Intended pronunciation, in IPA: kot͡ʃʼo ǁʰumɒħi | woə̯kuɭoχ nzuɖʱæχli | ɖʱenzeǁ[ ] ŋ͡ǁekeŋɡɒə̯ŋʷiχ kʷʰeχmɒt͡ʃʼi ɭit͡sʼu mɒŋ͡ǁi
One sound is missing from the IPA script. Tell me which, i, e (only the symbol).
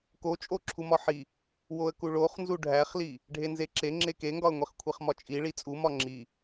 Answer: e